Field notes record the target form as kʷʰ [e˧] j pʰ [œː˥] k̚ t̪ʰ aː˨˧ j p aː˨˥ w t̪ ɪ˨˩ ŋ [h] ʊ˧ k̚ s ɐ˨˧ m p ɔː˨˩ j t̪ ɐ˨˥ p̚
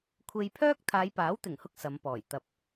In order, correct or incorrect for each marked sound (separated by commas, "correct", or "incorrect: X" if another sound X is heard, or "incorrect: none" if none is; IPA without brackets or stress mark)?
correct, correct, correct